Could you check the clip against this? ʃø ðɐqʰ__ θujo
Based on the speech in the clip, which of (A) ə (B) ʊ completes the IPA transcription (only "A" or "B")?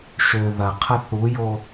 A